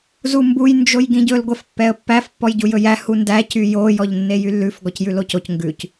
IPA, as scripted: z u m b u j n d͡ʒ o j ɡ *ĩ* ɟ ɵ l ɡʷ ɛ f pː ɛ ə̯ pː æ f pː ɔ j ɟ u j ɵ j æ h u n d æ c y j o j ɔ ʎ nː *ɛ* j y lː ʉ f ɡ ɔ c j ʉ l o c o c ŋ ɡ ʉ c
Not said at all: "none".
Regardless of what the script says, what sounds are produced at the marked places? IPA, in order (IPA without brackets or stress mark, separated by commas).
ĩ, e